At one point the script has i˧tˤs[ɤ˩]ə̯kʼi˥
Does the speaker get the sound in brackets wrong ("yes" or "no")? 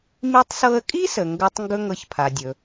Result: yes